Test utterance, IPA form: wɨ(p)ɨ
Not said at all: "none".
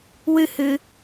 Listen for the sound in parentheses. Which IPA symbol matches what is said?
h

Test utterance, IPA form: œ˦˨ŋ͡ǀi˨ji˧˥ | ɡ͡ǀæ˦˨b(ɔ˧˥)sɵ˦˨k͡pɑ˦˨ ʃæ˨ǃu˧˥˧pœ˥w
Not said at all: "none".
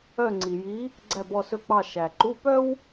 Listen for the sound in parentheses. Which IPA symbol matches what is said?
ɔ˦˨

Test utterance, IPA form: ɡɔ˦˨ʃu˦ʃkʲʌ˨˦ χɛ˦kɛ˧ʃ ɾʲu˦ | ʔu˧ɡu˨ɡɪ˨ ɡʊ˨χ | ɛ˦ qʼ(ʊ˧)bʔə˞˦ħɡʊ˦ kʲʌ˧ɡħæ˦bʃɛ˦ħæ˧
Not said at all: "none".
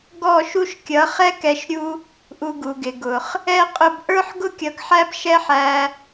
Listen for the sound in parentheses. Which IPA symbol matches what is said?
ʊ˧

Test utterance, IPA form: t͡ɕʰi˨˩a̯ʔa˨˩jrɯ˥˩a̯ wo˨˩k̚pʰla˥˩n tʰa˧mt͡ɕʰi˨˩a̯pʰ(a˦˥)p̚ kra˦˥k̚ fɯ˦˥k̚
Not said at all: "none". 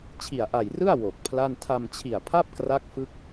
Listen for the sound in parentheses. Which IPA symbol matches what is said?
a˥˩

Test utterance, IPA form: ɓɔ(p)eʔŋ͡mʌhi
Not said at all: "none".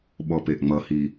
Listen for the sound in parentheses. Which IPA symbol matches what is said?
p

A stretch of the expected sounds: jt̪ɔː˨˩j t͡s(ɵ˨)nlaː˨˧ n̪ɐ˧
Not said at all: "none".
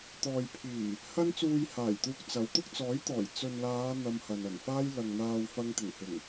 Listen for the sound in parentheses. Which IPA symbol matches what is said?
ɵ˨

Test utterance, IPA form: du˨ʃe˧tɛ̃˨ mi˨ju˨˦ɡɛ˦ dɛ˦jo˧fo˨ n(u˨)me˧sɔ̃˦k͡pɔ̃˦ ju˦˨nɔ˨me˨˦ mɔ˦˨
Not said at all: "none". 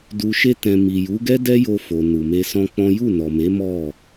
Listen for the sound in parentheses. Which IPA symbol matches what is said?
u˨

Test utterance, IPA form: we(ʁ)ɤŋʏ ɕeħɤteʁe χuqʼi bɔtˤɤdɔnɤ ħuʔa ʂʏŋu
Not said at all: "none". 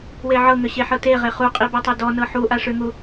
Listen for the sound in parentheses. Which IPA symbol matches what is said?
ʕ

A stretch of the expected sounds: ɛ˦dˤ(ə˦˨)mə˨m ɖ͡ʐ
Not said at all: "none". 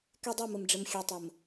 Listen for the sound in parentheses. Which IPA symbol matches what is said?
ø˦˨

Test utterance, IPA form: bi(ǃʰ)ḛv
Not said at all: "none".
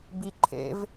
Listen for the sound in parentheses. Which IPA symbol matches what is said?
ǃʰ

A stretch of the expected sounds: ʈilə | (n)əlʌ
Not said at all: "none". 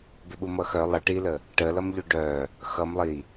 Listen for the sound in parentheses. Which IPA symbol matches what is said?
ʈ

